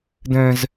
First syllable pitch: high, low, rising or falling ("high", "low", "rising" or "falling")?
high